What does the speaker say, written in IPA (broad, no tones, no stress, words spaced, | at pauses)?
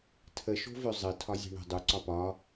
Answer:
tʰəʃo̤vø zˤɘ tʰɒzʲe̤ɳə̤ dˤu ǀɒpɒ